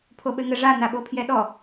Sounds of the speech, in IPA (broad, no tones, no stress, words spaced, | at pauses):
pʰoɓɘŋɘ ʐa naɓopʰjɛɗɔ